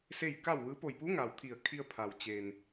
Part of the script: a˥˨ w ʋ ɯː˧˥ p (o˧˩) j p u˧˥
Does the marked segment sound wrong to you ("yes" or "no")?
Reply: no